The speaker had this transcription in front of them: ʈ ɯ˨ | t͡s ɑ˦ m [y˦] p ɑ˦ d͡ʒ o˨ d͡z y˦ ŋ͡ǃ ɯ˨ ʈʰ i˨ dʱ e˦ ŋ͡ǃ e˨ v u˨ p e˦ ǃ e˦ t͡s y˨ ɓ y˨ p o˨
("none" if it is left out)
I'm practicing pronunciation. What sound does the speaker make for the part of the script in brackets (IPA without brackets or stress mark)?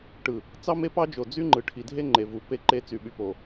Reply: e˦